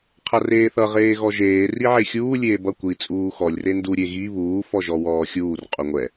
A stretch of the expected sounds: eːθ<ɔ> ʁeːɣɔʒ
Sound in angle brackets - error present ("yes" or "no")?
yes